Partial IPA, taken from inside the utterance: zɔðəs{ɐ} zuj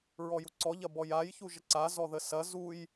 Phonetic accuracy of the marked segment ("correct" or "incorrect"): correct